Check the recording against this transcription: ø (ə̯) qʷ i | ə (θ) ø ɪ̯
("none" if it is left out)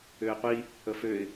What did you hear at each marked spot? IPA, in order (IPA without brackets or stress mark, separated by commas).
ɪ̯, f